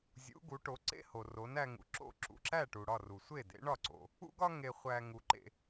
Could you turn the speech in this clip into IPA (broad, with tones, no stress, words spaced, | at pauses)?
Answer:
zʲṵ˩˥ ɡu˩˥ʈo˩˥ ǀḛ˥ ho˩ro˩˥næ˧ŋṵ˩ ǁo̰˧ ǁṵ˩ǁæ˥˩ ʈu˩ɽɒ˥˩ru˩ sʷe˥˩dḛ˩˥ɳɒ˥˩ǀo̰˩ | ṵ˥ɡɒ˥ ŋe˧χʷæ˧ ŋu˧ǃḛ˧